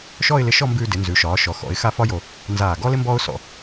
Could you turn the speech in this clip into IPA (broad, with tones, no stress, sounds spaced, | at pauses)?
ʃ ɔ˥˧ ɪ̯ l ɪ˧ ʃ ɔ˥˧ m b ʉː˧ d ɪ˩˧ n z ʉ˩˧ ʃ ɒː˩˧ ʃ ɔ˩˧ x ɔ̰˩˧ ɪ̯ x a˥˧ f ɒ˥ j o˧ | n z aː˧˩ ɡ ɔ˥ l ɪ˥ m b ɔː˥ ʊ̯ s ɔ̰˧˩